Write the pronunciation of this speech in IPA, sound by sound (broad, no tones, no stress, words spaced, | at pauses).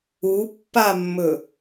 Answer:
upːamːɵ